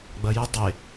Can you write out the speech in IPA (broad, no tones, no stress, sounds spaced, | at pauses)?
ɡ͡b ɐ j ə dˤ e